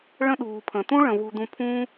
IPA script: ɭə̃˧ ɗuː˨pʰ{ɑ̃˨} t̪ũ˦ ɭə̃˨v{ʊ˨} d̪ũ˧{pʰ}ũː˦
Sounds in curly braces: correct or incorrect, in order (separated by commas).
incorrect, incorrect, correct